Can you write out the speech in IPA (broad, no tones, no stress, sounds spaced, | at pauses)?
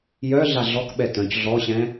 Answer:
j œ ɮ a ɮ ɔ k ɓ ɛ t œ̃ c ɮ ɔ ɕ ɛ̃